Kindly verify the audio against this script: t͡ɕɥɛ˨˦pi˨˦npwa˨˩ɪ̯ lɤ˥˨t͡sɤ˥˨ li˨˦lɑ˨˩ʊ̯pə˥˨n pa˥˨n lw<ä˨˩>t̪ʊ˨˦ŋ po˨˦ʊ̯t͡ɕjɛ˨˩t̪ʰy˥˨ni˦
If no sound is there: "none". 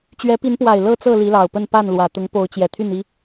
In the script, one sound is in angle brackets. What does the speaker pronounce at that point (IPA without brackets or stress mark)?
ä˨˩